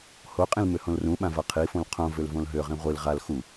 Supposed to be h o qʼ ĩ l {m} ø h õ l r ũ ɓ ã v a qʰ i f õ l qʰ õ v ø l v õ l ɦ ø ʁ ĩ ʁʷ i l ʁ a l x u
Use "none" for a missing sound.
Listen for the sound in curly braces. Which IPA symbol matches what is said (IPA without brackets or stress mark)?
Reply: m